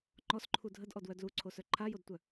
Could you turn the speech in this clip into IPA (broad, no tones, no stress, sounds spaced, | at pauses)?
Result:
ŋ͡ǃ ɔ s ǃʰ u dʱ ə d ʔ ɔ d w œ d l u ǀʰ o s œ ǃʰ a j o d tʷ œ